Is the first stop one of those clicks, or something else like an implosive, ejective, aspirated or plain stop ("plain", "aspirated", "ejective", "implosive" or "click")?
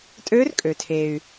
ejective